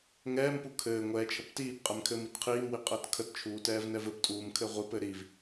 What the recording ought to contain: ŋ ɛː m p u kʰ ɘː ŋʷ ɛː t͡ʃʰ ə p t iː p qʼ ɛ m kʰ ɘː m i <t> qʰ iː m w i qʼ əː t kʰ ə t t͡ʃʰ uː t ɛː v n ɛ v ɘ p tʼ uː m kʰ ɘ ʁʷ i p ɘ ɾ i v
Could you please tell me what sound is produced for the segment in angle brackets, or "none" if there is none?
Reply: t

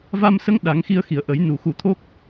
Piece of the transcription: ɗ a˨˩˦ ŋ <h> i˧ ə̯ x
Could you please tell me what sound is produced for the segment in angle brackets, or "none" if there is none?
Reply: x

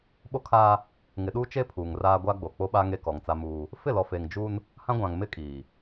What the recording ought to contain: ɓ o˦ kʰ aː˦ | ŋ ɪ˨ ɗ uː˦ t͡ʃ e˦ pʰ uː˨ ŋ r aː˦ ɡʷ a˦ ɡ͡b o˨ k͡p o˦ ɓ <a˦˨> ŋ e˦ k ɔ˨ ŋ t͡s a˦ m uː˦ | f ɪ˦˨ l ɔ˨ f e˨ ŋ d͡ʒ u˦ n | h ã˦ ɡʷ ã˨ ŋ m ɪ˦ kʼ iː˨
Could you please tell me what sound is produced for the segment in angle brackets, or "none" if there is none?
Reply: a˦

